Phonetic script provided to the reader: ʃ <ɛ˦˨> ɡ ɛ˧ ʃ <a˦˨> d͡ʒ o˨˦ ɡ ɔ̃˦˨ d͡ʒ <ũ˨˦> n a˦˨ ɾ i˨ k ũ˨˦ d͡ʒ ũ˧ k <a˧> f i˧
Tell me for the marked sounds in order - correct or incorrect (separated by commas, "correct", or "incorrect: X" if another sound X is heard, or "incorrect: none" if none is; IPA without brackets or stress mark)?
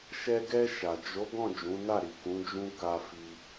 incorrect: ɛ˧, incorrect: a˨, correct, correct